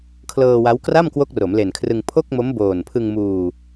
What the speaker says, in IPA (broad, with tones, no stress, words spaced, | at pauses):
kʰlɤː˧wa˦˥w kra˥˩mkwo˦˥k̚ ro˩˦mle˨˩nkʰrɯ˧ŋ pʰo˥˩k̚mo˦˥m boː˨˩npʰɯ˧ŋmuː˧